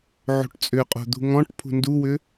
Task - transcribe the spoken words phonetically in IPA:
ʕ o̤ ʈ t͡sʼ ʏ qʼ o̤ d̪ ṳ ŋ ɔ̃ ʈ pʰ ṳ n d u w ʏ

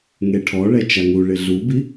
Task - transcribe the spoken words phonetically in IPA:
ŋ e ʈʰ ɔ ɭ ɛ t͡ʃ a ŋ u ɭ ɪ ɮ u b i

